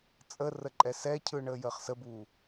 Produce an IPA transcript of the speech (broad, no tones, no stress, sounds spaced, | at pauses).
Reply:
t͡sʼ ə r ə ǃʼ ɛ s ɛ cʰ ɯ ɳ əː j əː χ s ə b uː